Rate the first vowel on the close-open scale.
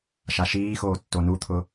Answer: open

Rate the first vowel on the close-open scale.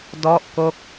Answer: mid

